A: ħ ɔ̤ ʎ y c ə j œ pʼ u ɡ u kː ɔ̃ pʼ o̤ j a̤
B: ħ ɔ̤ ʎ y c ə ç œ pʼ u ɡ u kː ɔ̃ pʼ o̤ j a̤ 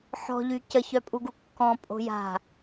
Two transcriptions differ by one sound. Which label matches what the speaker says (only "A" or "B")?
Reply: B